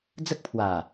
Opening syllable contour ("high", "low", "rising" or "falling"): high